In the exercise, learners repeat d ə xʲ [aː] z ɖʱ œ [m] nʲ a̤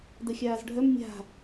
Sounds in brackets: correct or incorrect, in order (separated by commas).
correct, correct